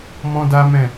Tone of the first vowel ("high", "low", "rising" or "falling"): high